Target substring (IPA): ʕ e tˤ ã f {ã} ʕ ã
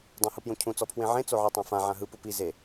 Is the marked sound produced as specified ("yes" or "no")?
yes